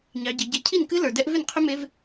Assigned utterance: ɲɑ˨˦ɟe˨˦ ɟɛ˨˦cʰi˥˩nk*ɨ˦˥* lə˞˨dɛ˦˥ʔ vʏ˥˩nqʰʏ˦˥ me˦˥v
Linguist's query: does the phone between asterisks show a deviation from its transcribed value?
no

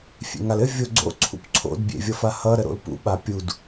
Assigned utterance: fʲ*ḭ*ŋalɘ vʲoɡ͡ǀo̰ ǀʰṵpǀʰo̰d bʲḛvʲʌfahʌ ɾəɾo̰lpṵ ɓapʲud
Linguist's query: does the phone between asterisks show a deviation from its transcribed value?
yes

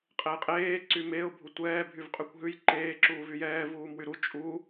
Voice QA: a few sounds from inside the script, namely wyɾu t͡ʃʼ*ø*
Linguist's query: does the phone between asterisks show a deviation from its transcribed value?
yes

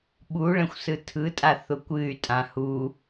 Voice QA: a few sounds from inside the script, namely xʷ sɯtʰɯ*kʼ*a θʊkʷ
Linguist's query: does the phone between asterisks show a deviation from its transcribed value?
yes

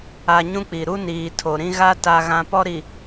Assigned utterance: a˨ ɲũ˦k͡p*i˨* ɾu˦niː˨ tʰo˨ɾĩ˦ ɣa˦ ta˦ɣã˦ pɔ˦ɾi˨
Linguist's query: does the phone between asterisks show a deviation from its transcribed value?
no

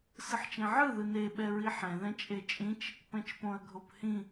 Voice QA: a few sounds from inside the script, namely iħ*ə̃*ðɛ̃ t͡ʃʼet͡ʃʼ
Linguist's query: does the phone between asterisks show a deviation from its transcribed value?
yes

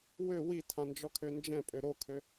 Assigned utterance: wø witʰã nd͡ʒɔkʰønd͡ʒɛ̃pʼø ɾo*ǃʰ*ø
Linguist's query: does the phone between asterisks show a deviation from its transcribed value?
yes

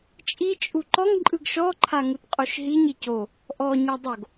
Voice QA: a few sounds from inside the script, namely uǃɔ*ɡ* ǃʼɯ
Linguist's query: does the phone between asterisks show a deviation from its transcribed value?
yes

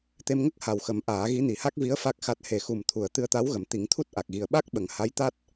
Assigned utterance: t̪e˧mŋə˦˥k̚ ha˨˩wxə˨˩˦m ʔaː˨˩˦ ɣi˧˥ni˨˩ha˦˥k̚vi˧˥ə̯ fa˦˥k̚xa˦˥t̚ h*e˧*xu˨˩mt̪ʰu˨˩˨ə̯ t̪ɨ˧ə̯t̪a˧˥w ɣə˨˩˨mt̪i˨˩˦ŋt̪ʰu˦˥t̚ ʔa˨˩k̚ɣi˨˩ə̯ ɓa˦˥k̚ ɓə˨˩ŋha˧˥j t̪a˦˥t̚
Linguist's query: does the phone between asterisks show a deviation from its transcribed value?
yes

